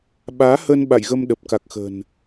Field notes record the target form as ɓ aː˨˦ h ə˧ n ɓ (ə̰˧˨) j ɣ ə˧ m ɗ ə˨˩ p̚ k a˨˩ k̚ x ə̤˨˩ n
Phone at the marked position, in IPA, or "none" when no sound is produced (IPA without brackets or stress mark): a̰˧˨